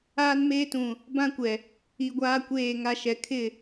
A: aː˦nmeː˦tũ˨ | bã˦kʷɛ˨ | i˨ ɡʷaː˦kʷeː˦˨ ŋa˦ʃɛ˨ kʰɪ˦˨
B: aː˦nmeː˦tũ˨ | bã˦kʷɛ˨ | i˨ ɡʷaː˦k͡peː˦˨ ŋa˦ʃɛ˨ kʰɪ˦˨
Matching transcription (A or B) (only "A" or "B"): A